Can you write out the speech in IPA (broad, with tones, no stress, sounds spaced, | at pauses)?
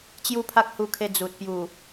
t͡ɕ j u˦ pʰ a˦ k̚ h u˧ kʰ e˧ d͡z u˨ t̚ p j u˨˩